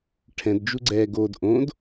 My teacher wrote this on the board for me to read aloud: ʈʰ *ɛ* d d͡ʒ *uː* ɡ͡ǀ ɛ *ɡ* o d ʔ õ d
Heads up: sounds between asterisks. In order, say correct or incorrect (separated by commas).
incorrect, incorrect, correct